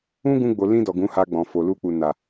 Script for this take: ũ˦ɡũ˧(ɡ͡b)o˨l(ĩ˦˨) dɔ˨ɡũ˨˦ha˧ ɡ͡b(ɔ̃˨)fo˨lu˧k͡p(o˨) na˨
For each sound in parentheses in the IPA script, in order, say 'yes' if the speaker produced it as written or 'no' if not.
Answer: yes, no, yes, no

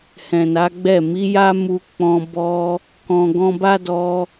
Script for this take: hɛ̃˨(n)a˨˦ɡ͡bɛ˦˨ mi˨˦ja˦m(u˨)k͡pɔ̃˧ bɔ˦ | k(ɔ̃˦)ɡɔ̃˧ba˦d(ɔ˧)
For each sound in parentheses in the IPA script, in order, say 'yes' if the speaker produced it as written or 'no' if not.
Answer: yes, no, no, yes

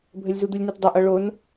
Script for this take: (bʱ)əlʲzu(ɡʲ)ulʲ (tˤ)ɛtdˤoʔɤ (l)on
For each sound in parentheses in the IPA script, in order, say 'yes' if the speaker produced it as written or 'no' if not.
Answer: yes, no, no, no

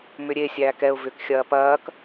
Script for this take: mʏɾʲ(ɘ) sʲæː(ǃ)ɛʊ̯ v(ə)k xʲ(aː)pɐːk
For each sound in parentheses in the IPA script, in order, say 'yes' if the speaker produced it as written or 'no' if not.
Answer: no, no, no, no

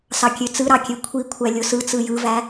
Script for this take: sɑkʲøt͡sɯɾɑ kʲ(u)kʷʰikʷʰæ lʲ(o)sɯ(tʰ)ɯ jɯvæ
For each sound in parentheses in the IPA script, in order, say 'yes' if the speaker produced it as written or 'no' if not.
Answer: no, yes, no

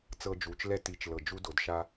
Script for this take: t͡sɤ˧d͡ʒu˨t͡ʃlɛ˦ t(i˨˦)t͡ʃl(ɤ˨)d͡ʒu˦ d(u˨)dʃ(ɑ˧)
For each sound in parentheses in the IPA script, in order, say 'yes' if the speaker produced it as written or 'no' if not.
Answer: yes, yes, no, no

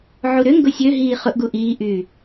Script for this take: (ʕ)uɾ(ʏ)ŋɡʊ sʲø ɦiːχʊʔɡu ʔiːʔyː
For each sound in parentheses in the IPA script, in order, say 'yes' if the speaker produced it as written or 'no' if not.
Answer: yes, yes

